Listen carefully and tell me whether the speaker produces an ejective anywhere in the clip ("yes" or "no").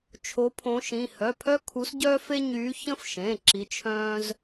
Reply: no